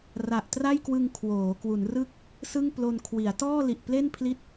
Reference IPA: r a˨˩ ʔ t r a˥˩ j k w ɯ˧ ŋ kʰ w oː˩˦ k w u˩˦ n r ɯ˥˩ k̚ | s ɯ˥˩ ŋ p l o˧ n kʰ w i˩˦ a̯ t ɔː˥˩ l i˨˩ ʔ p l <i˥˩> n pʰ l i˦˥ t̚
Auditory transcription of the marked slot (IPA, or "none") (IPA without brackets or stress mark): e˥˩